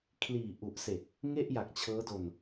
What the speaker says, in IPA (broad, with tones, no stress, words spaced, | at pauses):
kʰliː˨˩ʔu˨˩ʔse˨˩k̚ | ŋe˥˩ʔja˨˩k̚t͡ɕʰɤː˦˥do˧n